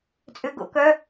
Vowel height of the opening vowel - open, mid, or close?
close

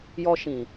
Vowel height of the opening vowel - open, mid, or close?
mid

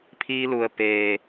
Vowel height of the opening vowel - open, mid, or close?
close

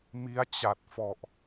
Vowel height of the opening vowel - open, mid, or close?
close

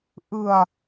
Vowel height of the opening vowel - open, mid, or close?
close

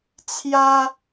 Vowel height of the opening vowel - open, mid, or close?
open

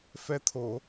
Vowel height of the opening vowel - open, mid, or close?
mid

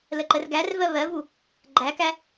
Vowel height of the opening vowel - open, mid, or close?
mid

